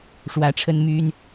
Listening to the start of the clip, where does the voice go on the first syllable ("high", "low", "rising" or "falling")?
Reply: rising